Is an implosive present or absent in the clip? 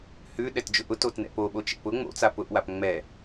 present